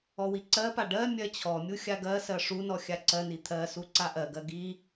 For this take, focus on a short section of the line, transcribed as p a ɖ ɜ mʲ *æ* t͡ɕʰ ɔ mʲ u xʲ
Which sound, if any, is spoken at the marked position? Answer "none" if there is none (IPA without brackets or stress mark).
ɜ